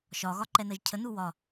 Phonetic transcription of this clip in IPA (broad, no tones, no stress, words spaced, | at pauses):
ʃɒ ɣɒǃɛnɜʒcʰə nuwɒ